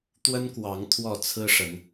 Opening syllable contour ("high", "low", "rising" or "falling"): high